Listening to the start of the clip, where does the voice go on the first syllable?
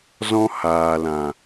high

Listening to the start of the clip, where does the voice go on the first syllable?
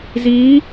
rising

